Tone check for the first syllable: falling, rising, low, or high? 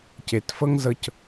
low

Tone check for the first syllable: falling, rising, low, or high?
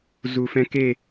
low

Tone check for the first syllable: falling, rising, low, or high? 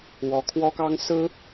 rising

